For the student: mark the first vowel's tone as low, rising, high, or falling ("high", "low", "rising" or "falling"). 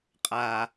low